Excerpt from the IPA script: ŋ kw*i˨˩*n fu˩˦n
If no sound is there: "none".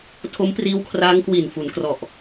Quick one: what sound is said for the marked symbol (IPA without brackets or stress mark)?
i˨˩